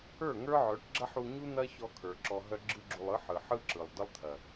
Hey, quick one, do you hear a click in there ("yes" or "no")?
yes